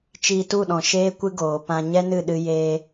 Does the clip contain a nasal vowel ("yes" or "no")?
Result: yes